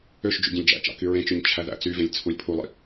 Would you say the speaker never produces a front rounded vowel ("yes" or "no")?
no